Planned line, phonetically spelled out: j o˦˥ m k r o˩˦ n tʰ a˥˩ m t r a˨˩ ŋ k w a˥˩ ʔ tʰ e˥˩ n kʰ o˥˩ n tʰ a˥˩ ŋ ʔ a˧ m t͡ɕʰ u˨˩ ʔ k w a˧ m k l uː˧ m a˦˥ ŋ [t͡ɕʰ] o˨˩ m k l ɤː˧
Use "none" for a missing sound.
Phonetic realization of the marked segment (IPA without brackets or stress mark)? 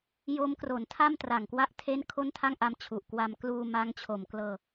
t͡ɕʰ